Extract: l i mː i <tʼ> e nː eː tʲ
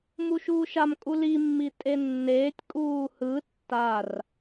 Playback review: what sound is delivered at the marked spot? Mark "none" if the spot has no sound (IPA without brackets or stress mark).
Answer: tʼ